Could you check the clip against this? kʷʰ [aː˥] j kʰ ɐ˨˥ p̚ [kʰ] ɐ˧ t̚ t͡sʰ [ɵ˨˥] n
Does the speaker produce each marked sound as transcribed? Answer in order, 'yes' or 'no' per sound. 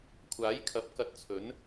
no, no, yes

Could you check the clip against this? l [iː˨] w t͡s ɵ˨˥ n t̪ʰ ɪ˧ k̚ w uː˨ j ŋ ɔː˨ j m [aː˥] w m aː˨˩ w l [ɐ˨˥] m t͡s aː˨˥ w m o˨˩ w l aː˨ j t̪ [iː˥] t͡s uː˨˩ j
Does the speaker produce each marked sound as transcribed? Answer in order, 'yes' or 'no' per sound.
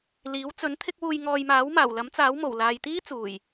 no, no, yes, yes

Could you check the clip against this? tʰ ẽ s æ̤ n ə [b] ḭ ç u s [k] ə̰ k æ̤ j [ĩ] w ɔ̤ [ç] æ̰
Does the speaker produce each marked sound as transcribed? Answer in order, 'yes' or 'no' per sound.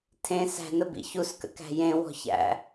yes, yes, no, yes

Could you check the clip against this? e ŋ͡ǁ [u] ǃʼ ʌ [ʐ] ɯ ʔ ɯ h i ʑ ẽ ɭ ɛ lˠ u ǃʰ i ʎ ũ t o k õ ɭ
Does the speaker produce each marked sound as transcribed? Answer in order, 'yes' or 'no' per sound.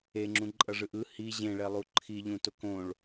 no, yes

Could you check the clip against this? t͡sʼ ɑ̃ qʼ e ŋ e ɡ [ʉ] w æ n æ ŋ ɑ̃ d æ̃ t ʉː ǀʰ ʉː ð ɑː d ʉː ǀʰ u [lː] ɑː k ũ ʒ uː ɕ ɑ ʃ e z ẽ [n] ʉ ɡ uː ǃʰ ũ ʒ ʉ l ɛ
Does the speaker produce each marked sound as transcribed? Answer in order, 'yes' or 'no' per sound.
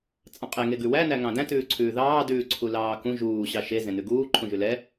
yes, no, yes

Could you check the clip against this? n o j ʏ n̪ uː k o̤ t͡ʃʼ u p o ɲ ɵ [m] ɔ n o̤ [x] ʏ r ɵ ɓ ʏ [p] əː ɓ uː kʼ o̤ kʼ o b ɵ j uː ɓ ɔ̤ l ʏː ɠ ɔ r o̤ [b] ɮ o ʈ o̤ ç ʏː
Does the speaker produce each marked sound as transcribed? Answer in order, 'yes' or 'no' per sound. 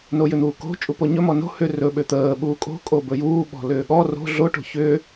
yes, no, no, no

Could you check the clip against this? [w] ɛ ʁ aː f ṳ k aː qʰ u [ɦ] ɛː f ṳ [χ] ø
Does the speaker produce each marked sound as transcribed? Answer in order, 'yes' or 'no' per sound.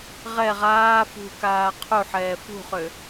no, no, yes

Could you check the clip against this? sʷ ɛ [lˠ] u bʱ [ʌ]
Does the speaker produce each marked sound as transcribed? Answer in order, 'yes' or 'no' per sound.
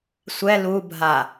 no, no

